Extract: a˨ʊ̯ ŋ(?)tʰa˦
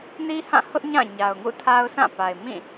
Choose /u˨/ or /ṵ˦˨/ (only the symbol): ṵ˦˨